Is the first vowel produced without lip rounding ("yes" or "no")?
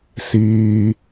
yes